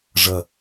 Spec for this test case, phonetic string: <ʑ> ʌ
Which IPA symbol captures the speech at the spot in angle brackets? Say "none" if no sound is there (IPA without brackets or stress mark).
ʐ